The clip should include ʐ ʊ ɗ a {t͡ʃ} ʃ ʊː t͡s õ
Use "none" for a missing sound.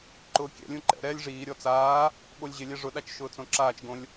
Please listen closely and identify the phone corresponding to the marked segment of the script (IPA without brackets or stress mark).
t͡ʃ